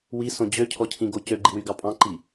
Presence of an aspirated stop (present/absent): present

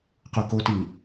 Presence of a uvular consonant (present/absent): present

